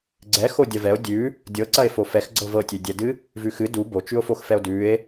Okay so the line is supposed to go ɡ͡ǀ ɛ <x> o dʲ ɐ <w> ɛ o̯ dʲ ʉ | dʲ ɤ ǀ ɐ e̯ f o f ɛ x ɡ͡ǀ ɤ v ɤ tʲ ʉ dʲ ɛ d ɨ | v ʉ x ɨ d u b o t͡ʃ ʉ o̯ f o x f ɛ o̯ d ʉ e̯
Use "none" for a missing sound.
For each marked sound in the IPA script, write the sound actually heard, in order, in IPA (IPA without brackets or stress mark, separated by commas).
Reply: x, v